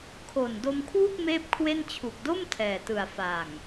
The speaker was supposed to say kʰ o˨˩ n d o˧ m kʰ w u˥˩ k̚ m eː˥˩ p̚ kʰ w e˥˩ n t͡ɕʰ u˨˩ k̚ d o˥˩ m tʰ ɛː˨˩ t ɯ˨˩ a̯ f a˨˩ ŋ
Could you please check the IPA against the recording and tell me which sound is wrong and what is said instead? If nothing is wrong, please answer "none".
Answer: none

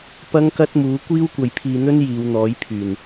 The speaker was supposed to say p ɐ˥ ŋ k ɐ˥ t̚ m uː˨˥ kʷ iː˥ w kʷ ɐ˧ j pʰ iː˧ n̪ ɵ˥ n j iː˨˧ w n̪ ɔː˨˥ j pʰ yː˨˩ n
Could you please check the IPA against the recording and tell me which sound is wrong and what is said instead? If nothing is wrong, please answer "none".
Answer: none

